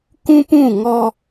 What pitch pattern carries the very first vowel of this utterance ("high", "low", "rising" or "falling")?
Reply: high